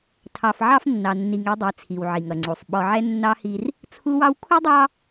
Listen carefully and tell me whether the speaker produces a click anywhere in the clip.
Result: yes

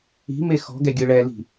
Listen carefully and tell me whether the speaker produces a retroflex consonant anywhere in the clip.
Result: yes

